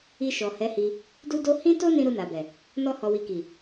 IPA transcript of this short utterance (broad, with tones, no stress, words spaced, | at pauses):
i˧ʃɔ˨ hɛ˨˦hi˧ | du˦do˦ hĩ˦to˦ nĩ˦ ɾu˧na˨bɛ˨ | nɔ˦hɔ˧wi˧ ki˨